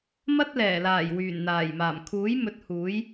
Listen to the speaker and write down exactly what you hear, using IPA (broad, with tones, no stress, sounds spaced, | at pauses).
m ɐ˥ t̚ l ɛː˨˩ l aː˨˩ j w yː˨˩ n n̪ aː˨˩ j m aː˨˩ m kʰ uː˨˥ j m ɵ˨˥ t̚ h uː˨˥ j